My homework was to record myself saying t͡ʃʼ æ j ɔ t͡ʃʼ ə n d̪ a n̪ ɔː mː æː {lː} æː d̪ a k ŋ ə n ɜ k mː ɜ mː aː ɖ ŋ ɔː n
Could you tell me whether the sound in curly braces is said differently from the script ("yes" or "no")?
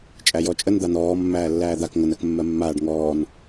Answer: no